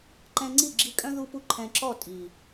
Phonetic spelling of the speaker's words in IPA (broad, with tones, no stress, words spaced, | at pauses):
ǃɛ̃˧ŋ͡ǀi˦˨ɡ͡ǁi˧ kʼœ̃˦ ðu˦pu˦ ǃʰɛ̃˧ǁɔ˦˨ tʼi˨